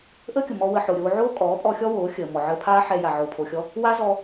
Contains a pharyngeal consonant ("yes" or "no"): yes